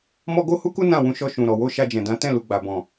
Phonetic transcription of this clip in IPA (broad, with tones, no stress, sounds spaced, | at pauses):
m ɔ˦ ɡ o˦ h u˦ k u˦ n ã˦˨ w ũ˧ ʃ ɔ˧ ʃ ũ˨ ɾ ɔ˨ w o˧ ʃ a˧ d͡ʒ ɛ̃˨ d ã˨˦ t ɛ̃˦˨ l u˨ ɡ͡b a˨ b ɔ̃˨